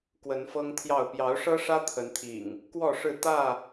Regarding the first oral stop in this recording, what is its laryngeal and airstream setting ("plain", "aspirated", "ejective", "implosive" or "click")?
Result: plain